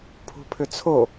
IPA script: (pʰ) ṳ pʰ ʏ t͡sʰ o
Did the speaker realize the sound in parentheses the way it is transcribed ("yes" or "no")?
yes